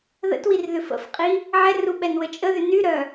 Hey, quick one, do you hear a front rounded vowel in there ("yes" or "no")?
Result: yes